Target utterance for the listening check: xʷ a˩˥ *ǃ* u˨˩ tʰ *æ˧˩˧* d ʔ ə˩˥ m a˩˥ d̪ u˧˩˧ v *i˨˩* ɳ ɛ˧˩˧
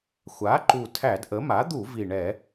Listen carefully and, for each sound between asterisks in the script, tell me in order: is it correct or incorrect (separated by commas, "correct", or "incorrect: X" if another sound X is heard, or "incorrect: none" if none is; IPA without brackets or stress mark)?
correct, correct, correct